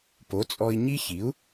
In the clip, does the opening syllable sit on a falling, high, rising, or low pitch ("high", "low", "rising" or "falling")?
rising